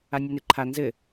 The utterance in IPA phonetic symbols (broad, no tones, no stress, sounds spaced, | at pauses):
a nʲ o n e ǃʰ a n z ɘ